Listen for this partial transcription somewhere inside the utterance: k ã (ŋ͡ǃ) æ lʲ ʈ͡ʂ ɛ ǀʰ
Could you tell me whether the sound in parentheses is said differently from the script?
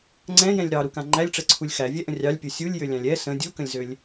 no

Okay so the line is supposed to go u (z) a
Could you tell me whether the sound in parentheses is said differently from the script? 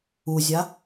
yes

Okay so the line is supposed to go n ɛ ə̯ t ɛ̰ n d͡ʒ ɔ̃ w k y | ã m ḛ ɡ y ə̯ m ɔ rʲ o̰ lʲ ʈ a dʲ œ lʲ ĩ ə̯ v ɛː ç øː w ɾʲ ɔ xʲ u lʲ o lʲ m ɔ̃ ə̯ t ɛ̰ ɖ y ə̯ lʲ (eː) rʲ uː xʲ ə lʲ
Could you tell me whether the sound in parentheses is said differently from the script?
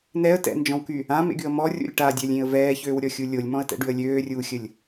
yes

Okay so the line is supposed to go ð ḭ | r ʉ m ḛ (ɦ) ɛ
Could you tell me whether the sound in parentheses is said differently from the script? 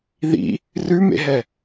no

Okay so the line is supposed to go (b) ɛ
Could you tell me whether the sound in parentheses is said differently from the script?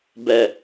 no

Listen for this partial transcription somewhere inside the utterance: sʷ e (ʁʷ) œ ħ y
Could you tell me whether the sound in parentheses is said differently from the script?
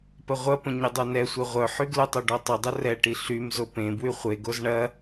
no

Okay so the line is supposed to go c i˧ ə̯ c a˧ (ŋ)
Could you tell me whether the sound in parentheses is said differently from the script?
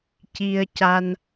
yes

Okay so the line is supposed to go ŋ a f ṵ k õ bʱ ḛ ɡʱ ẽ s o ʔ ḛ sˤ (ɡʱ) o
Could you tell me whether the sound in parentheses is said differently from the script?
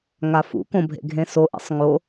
yes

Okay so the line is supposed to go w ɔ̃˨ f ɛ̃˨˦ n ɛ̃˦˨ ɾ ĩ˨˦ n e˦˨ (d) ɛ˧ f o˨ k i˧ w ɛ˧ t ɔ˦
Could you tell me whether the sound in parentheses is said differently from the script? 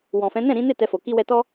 yes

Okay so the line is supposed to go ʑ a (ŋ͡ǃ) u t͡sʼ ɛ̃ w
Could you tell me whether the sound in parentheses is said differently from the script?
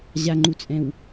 no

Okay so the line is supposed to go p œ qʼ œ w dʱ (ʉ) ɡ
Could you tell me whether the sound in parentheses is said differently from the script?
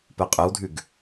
no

